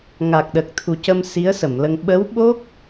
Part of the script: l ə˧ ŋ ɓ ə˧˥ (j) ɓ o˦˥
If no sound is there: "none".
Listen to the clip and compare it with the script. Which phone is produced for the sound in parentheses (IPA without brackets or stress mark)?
w